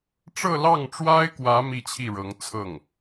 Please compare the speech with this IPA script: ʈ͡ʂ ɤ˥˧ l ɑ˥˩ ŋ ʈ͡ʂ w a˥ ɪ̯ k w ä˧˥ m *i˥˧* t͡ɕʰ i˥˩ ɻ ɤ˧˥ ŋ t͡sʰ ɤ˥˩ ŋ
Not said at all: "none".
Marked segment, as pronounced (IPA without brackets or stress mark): i˥˧